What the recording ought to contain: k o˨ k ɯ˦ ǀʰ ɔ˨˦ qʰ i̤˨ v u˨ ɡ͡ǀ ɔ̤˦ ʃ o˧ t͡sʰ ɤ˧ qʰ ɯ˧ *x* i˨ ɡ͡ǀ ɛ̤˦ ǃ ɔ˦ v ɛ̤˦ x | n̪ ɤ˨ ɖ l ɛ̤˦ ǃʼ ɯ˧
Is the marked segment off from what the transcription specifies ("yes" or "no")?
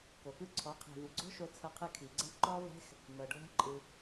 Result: yes